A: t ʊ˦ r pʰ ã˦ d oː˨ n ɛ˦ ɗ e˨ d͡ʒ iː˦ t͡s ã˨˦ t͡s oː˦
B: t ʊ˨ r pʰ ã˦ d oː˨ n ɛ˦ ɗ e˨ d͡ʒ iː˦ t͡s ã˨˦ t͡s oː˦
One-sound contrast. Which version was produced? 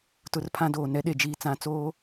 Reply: A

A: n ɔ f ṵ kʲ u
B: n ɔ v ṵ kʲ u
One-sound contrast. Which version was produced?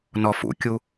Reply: A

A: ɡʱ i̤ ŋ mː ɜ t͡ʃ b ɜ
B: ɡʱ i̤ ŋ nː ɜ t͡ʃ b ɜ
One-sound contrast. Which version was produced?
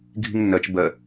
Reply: B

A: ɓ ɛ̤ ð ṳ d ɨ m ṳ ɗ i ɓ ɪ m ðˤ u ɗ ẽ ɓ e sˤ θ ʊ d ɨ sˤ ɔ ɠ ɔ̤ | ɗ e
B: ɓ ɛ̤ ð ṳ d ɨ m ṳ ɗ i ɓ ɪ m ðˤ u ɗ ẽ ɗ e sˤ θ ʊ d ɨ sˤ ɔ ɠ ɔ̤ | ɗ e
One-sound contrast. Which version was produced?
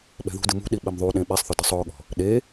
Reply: A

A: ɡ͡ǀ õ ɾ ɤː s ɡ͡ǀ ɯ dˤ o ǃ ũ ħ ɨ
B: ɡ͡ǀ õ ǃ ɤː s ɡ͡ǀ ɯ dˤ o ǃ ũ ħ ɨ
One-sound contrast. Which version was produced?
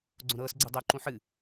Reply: A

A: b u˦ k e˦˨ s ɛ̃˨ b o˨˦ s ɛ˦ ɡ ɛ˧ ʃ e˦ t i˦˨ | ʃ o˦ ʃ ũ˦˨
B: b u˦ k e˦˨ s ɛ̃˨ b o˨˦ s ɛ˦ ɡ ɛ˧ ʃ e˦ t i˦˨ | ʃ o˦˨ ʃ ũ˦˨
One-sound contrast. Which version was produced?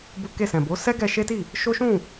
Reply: A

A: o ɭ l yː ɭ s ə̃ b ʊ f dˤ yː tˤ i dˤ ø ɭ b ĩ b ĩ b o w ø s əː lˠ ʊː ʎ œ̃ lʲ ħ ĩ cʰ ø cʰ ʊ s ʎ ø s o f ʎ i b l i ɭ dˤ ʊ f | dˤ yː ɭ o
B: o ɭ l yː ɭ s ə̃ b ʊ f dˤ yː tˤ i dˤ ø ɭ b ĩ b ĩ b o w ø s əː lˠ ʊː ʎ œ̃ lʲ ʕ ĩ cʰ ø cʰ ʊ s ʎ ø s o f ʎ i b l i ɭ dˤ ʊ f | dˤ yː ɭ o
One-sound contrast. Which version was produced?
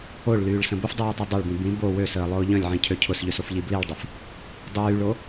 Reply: B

